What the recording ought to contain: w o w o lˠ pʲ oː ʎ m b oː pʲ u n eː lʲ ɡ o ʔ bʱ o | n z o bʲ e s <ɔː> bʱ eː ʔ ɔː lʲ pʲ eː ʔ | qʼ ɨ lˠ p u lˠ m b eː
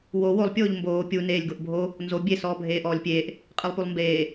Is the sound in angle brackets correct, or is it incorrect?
correct